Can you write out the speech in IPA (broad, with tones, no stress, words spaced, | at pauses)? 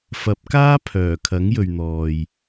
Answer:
fɐ˨˥p̚kaː˥ pʰœː˨˩kʰɐ˨˥ŋjɵ˨ɥn̪ɔː˨j